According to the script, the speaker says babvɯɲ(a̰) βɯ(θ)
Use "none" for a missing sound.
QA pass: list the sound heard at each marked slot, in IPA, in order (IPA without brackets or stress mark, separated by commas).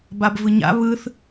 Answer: a̰, θ